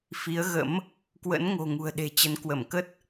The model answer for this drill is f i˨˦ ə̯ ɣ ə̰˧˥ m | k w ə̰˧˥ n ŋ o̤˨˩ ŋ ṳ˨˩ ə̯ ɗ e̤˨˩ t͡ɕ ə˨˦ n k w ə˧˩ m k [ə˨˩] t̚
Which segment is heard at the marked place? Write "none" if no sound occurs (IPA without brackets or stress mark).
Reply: ə˦˥